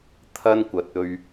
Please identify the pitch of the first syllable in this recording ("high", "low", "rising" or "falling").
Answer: high